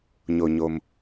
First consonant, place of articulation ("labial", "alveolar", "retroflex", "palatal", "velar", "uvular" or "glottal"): palatal